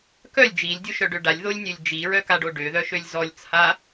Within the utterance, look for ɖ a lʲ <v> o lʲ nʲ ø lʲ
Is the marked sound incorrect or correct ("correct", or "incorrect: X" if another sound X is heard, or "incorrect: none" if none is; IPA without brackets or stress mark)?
incorrect: ð